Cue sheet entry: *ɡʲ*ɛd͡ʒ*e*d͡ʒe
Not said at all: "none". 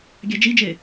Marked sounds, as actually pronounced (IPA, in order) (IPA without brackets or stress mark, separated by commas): ɡʲ, i